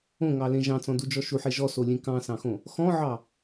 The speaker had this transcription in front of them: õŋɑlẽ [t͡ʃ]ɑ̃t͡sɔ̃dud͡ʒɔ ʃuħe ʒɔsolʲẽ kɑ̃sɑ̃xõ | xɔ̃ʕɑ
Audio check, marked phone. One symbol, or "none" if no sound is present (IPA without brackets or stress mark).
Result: ʒ